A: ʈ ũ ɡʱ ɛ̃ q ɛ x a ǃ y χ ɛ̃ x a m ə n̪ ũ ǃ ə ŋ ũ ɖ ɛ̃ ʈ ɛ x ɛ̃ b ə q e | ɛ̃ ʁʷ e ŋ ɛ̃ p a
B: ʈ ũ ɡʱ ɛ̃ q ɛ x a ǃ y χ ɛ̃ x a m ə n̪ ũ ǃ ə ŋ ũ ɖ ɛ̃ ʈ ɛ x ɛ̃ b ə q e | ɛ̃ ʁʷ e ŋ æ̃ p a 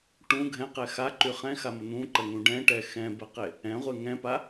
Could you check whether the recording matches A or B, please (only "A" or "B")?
A